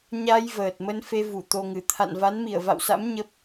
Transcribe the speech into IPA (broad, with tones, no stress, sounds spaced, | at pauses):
ɲ a˧ j v əː˨˩ t̚ m ə˧ n f e˧ v u˧˩ t̪ o˧ ŋ ɨ˧˩ t̪ʰ a̰˧˨ n v a˨˦ n m i˧˩ ə̯ v a̰˧˨ w s a̰˧˥ m ɲ ə˦˥ p̚